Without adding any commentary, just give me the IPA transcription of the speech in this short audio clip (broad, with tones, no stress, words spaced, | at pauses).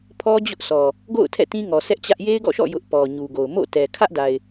pʰɔ˦ d͡ʑʊ˦ʔ sɔ˨ | ɡo̰˦˨ʊ̯ tʰɛ̰˦˨tĩ˦ŋɔ˨ sɛ˦ʔt͡ɕä˦ʔ je˦ɪ̯ɡɔ̰˦˨ʃɔ̰˦˨ jʊ˦ʔ pɔ˨ ɲu˨ɡo˨ʊ̯ mo̰˦˨tɛ˨ kʰä˦ʔda˨ɪ̯